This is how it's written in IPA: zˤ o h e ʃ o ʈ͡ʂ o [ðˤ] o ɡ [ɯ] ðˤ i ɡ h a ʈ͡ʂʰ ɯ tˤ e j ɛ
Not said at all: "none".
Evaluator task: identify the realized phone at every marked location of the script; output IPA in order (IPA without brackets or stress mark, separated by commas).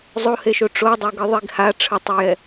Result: dˤ, ɯ